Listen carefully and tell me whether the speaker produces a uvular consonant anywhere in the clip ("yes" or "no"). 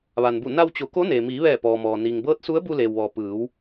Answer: no